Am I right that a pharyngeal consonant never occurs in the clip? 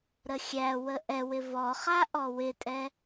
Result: yes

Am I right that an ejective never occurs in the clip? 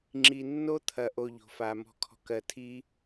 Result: yes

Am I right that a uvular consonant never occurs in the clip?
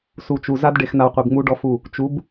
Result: no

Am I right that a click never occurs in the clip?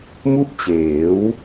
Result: yes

